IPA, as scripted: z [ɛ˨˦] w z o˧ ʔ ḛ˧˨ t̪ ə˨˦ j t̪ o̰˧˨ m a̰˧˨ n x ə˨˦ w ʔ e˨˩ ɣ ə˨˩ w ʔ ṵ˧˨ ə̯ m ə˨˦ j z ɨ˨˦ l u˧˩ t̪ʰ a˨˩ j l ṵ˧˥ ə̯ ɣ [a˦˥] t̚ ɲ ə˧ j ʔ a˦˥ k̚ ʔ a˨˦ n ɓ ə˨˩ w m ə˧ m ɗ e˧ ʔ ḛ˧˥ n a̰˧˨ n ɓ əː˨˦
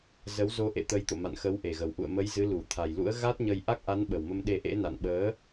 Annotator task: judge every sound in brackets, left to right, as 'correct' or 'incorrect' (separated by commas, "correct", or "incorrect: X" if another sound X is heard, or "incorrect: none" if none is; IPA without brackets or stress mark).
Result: incorrect: ə˨˦, correct